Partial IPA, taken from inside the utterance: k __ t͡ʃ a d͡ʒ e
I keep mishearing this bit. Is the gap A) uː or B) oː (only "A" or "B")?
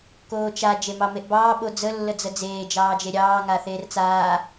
B